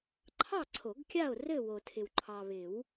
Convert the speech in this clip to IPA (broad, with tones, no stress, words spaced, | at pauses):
ǃʰɑ˥˨ǀʰo˨˩˦ɡkʲa˥˨o̯ rɘ˥˨ wo˨tʰɪ˨w ǃʰɑ˨βɪ˨˩˦w